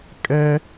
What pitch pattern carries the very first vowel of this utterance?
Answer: high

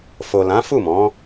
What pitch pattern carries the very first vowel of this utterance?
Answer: low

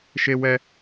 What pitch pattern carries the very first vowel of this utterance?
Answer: high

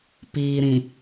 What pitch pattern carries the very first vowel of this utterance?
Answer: low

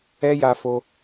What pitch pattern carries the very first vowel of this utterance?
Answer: high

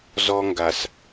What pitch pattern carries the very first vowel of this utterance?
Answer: high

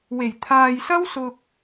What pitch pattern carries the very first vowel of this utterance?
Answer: low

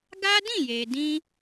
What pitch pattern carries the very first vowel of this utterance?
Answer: high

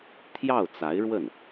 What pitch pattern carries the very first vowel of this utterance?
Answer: falling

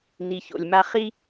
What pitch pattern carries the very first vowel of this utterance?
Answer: low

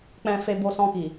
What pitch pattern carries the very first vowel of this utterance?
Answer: low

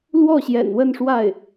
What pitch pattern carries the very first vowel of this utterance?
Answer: falling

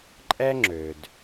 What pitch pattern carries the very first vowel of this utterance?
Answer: high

